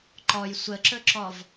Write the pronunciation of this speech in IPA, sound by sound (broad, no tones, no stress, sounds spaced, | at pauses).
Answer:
ǃ ɔ j sʷ ə ǁ ɵ ǁ ɔ v